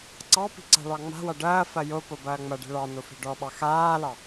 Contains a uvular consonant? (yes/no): no